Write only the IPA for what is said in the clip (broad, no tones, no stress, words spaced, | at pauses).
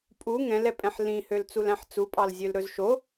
pʼu ŋɛ̃lɛpʼɛ̃ħ lĩhølt͡sulæ̃ħ t͡supʼɑlzʲølɾɵz ʃo